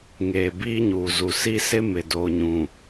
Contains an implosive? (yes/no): no